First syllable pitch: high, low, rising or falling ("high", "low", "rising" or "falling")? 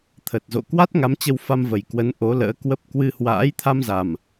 low